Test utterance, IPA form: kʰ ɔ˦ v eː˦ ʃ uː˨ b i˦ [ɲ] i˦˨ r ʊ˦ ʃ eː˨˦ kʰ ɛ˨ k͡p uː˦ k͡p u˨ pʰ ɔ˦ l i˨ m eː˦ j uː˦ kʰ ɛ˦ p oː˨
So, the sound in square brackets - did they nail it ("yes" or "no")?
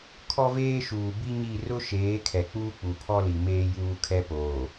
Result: yes